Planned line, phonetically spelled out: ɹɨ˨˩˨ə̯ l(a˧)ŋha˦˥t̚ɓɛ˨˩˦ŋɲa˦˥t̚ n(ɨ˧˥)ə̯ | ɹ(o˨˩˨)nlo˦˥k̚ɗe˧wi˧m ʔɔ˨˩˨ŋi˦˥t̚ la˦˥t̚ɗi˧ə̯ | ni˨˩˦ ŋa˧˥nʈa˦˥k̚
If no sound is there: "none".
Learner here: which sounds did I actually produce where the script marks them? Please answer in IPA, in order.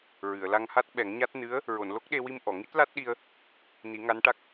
a˧, ɨ˧˥, o˨˩˨

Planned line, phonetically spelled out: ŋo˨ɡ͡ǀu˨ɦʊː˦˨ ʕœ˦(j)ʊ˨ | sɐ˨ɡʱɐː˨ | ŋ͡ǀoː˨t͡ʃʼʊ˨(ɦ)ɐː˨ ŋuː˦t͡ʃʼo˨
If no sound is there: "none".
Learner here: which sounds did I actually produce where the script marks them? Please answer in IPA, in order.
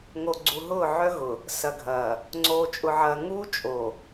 ɣ, ʕ

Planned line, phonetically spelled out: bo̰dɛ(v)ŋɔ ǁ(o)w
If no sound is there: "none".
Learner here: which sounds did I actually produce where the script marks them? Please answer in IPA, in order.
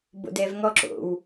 v, o̰

